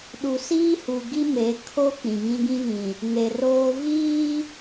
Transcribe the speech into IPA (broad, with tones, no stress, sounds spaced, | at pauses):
ɗ u˨ s iː˦ h u˨ ɡ i˦ m e˨˦ kʰ o˦ k͡p ĩ˨ ŋ ĩ˦ ɡ ĩ˦ v ĩ˨ | ŋ e˨ r oː˦ v iː˦